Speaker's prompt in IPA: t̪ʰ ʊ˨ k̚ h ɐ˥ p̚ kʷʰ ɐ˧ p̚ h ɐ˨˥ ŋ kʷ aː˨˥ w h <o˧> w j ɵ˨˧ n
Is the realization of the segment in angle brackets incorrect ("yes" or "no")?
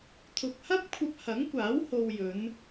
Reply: no